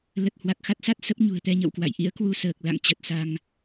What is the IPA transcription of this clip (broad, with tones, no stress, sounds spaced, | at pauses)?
l ə˨˩ t̚ h w a˨˩ k̚ x a˦˥ t̚ s a˦˥ t̚ s ə˦˥ p̚ ɲ ṳ˨˩ ə̯ t̪ ɛ˧ ɲ ə̰˧˨ w k w a̰˧˨ j ʔ ḭ˧˥ ə̯ k w u˧ s əː˨˩ k̚ l a̰˧˨ ŋ t͡ɕ ə˨˩ t̚ s a˧ ŋ